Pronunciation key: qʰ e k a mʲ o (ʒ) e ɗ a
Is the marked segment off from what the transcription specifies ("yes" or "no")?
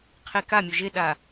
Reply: no